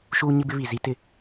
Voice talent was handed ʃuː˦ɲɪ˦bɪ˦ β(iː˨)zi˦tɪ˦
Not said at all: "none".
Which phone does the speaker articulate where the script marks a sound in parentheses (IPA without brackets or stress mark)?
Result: i˨